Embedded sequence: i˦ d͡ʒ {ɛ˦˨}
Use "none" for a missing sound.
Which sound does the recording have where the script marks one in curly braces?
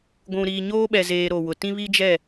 ɛ˦˨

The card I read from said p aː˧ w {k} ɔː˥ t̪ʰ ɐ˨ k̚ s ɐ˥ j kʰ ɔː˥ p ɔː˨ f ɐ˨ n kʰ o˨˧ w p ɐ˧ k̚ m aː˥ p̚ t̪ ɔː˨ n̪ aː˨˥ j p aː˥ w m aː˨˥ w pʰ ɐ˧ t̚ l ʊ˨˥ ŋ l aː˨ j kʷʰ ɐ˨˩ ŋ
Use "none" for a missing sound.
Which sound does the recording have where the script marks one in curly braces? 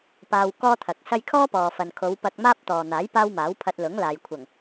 k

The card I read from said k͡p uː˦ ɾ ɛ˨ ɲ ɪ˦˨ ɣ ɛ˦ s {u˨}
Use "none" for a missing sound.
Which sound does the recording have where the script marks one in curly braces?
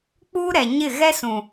ũ˨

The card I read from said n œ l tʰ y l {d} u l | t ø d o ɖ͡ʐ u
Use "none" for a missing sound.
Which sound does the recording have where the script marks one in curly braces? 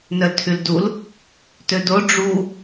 d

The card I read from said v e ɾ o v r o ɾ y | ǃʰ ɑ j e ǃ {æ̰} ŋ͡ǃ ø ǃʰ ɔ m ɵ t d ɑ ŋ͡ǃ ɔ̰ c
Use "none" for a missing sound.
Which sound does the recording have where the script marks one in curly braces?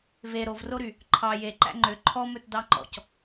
æ̰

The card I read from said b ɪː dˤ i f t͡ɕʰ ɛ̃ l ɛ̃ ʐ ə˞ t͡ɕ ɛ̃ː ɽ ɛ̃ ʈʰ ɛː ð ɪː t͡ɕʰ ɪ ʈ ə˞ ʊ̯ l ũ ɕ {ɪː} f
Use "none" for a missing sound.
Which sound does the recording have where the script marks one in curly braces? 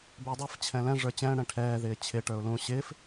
ɪː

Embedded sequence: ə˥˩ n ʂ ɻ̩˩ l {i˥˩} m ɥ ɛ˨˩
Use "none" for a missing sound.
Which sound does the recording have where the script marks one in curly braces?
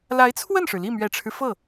i˥˩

